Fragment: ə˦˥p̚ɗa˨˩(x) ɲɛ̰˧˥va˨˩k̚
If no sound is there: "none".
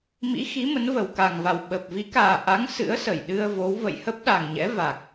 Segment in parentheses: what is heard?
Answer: ŋ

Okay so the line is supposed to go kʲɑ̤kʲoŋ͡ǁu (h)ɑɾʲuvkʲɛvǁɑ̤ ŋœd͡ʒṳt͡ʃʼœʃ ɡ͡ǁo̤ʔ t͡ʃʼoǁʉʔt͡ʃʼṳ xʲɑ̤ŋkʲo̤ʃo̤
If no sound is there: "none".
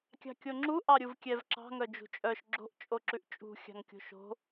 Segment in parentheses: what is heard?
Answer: ʔ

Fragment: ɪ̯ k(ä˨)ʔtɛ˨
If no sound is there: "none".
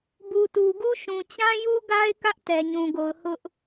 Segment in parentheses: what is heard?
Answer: ä˦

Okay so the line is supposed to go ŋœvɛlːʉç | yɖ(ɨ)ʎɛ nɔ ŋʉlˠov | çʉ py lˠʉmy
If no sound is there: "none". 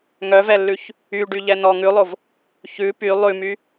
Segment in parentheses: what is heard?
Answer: y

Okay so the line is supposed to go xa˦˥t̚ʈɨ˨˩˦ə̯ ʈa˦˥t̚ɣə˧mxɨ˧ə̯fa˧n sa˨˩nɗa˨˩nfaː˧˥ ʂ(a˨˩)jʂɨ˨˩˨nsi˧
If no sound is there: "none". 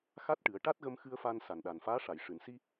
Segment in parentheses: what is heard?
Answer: a˨˩˨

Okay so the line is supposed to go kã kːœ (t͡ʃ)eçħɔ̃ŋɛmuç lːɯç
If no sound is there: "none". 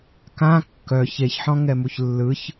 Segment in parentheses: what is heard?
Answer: ç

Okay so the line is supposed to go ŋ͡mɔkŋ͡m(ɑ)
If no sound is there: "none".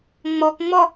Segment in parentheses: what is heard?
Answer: ɔ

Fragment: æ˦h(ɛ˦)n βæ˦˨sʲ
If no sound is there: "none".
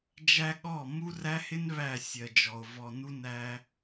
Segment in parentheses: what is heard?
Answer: ɪ˦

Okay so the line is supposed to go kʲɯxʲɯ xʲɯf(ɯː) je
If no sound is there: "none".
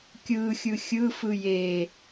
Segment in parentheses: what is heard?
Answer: ɯ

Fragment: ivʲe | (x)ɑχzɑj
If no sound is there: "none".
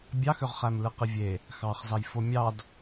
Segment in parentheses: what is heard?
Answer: x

